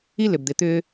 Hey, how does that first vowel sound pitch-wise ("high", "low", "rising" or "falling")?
high